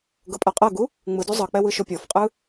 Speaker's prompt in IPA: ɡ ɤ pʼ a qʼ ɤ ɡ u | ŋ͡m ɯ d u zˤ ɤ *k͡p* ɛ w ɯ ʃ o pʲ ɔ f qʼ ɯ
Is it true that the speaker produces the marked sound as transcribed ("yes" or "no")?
yes